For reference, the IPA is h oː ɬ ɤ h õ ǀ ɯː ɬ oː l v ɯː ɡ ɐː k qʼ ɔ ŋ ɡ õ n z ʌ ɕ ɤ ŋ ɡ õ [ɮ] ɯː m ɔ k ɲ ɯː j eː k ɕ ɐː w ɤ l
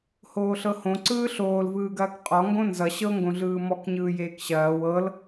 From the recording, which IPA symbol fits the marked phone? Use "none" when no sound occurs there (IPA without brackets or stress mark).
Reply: ɮ